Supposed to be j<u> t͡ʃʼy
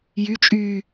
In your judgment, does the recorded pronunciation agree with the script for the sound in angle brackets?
no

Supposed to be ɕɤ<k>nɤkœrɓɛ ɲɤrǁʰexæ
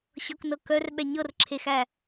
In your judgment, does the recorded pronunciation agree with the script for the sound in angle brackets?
yes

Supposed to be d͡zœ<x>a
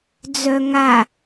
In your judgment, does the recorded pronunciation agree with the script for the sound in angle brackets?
no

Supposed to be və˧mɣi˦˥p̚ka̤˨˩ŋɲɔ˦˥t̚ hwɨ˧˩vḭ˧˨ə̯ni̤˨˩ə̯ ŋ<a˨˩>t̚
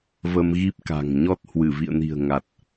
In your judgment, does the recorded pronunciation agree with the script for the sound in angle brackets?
yes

